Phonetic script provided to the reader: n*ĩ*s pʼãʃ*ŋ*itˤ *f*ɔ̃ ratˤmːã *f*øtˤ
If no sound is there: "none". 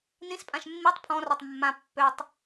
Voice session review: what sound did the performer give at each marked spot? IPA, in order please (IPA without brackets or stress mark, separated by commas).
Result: ĩ, mː, pʰ, pː